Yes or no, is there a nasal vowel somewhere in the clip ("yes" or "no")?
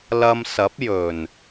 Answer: no